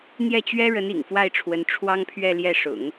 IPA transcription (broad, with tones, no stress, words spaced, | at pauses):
n̪jɛ˥˩t͡ɕɥɛ˥ ɻə˧˥n ḭ˨˩ŋfwa˥˩ɪ̯ʈ͡ʂʰwə˧˥n ʈ͡ʂʰwɑ˥ŋpʰɥɛ˥˧ljɛ˥˩ ʂʊ̰˨˩˦ŋ